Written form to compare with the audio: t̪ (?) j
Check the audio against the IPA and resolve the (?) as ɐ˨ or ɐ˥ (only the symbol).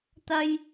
ɐ˥